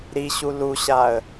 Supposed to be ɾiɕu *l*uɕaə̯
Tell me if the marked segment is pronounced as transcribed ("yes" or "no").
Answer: yes